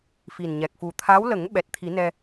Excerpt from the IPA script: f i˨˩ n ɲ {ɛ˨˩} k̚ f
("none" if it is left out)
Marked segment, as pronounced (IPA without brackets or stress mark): ɛ˨˩